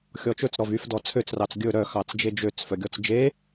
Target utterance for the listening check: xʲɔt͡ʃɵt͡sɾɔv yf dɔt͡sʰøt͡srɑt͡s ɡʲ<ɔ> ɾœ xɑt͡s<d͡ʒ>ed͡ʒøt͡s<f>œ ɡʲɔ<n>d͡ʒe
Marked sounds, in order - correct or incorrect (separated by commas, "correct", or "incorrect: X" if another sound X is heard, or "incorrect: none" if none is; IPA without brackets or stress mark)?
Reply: incorrect: ɵ, correct, correct, incorrect: t͡s